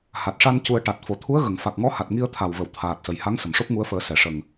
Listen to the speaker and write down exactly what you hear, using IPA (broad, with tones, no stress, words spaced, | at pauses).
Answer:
ha˨˩t̚ʂa˧n cu˧ə̯ ʈa˨˩t̚ fo˨˩t̪ʰu˧˥ə̯ ɣə˨˩˨ŋ fa˨˩k̚ŋɔ˧˥ha˨˩t̚ ŋi˧ə̯t̪ʰa˨˩wvə˨˩˨w t̪ʰaː˨˩t̚sə˨˩jha˧˥ŋ sə˨˩˨mʂo˦˥p̚ŋu˧˥ə̯fəː˨˩˦ sɛ˨˩˨ʂə˨˩ŋ